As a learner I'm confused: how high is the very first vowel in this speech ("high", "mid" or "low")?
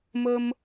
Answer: mid